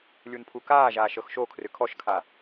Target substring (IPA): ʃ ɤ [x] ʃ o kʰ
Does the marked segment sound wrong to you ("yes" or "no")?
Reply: no